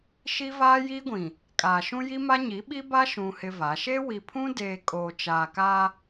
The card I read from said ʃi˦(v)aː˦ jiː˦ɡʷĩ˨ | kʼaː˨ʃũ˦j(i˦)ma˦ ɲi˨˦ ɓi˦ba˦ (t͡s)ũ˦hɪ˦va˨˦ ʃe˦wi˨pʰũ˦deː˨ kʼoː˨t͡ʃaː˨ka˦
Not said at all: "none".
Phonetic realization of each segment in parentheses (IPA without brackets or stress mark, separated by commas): v, i˦, ʃ